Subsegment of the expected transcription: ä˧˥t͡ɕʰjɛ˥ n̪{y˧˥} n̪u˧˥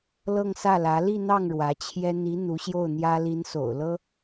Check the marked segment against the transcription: incorrect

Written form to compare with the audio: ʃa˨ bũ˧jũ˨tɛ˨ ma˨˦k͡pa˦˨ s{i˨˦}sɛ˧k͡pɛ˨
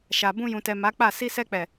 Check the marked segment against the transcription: incorrect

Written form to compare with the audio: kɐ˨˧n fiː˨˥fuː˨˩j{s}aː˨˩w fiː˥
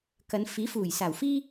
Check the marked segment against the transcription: correct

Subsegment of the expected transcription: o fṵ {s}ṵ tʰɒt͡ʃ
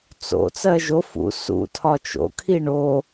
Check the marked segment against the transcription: correct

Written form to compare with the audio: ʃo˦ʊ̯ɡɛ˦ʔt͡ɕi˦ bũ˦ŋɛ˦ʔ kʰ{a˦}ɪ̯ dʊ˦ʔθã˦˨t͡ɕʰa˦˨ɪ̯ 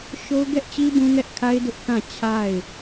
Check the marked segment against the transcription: correct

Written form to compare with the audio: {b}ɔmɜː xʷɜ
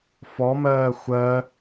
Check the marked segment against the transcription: incorrect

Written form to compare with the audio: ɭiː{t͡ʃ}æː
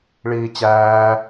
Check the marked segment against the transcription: incorrect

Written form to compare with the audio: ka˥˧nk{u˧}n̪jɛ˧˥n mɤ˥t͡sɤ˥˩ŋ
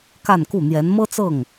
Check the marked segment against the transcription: incorrect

